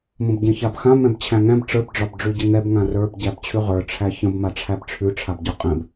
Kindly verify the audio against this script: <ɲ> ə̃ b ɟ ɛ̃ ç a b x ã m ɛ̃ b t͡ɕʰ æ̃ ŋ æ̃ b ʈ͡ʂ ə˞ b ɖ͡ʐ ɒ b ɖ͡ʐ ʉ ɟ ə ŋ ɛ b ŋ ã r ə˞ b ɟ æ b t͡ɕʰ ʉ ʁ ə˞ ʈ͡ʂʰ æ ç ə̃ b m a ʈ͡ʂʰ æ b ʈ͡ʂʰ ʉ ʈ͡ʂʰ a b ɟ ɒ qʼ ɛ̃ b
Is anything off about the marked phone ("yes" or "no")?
yes